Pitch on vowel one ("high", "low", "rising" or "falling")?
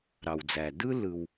low